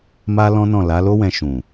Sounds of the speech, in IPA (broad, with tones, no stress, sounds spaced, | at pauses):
m a˦ l ɔ̃˦ n ɔ̃˦˨ l a˨˦ l o˦ w ɛ̃˧ ʃ ũ˨